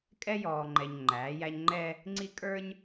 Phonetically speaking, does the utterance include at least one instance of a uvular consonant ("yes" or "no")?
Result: no